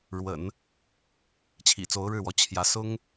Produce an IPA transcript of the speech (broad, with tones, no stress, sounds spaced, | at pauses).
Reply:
ɻ w ə̰˨˩˦ n | t͡ɕʰ ḭ˨˩ t͡s o˧˥ ʊ̯ ɻ ɻ̩˥˩ w ɔ˧˥ t͡ɕʰ j ä˧˥ s ʊ˥ ŋ